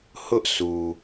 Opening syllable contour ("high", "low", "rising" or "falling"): high